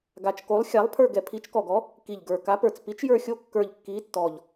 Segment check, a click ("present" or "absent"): absent